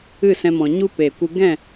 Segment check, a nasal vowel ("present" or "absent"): present